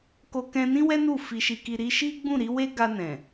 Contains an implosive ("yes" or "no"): no